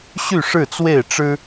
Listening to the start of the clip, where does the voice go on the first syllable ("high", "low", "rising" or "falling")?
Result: falling